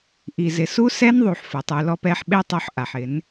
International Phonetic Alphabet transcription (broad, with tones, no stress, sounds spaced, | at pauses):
ʔ i˨ z ɪ˨ s u˦ s ɛ˦ n ðˤ u˨ ħ f ʊ˨ tˤ u˨ l ɔ˧ p ɛ˧ ħ ɓ e˦ tˤ o˧ ħ ʔ a˨ ħ ɪ˨˦ n